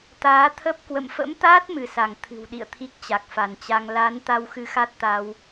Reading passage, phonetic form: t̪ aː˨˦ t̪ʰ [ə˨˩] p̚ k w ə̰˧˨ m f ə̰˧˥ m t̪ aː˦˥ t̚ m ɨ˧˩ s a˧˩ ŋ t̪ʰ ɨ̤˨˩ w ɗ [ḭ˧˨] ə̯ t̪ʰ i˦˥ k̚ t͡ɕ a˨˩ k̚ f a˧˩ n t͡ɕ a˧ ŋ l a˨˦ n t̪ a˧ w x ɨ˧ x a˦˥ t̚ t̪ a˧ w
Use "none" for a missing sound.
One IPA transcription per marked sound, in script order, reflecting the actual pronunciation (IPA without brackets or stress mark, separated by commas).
ə˦˥, ḭ˧˨